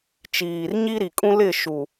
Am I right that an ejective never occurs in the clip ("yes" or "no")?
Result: no